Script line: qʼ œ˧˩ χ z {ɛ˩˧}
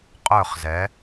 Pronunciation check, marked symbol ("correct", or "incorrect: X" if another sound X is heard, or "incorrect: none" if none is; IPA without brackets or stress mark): correct